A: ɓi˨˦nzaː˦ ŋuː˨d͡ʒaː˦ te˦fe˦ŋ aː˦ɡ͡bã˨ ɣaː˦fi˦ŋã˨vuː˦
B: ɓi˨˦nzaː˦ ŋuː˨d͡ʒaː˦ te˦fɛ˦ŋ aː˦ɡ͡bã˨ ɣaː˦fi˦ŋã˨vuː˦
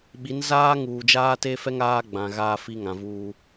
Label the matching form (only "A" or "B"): B